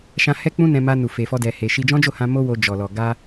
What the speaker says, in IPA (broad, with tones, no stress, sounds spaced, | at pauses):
ʃ ã˦ h ɛ˦ k͡p ũ˦ n ɛ̃˧ m a˧ n u˨ f e˧ f ɔ˦ d ɛ˧ h e˧ ʃ i˧ d͡ʒ ɔ̃˦ d͡ʒ o˦˨ h ã˧ m o˦ w o˧ d͡ʒ ɔ˨ l ɔ˨ ɡ a˧